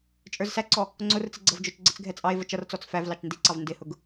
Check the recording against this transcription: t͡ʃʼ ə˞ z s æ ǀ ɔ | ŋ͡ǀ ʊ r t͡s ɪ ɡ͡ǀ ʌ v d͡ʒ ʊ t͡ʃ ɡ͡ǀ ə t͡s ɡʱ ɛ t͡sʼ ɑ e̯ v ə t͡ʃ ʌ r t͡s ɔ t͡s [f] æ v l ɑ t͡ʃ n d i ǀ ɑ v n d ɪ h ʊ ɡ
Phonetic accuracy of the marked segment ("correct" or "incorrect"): correct